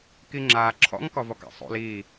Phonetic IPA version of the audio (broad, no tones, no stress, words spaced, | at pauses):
kiŋ͡ǁaː ǁʰɔ̰ŋ kɔvɔka̰sˤo̰l iː